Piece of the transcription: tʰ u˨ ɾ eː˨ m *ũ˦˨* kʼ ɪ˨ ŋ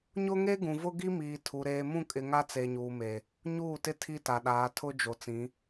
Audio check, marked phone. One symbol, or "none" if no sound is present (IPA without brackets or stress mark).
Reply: ũ˦˨